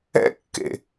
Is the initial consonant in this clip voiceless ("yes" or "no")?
yes